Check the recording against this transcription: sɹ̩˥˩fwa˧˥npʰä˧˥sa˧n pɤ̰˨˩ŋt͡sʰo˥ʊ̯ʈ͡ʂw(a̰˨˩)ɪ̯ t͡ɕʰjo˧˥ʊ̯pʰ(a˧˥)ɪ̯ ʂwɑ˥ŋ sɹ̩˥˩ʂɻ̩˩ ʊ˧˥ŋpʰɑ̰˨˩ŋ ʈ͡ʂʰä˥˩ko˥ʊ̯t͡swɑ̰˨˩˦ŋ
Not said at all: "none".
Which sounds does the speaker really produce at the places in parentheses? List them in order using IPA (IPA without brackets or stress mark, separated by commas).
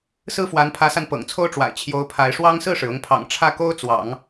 a̰˨˩, a˧˥